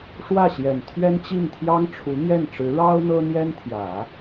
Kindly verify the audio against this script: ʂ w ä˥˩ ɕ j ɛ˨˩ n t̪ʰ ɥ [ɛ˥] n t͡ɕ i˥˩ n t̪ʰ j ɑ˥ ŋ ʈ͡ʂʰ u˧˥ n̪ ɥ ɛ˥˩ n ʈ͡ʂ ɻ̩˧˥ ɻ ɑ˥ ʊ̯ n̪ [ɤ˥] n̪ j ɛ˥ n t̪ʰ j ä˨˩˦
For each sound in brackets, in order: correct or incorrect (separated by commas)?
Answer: correct, correct